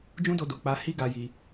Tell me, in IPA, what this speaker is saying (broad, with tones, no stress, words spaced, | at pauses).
d͡ʒũ˦do˧do˨ k͡pa˧hi˦ ɡa˧ji˧